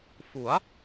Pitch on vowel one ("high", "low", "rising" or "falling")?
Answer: rising